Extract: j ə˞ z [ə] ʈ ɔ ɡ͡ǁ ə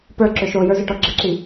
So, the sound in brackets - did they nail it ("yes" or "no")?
no